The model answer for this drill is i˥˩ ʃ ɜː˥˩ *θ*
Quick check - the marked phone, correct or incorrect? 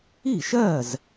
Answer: incorrect